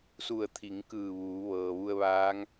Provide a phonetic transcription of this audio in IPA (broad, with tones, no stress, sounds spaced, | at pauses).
s u˧˩ ə̯ t̪ʰ i˩˧ ŋ k ɯː˧˩ ʋ uː˩˧ ʋ ɤː˩ ʋ u˧ ə̯ ʋ aː˧˥ ŋ